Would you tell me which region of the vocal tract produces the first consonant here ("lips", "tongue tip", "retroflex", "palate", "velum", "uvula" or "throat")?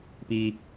lips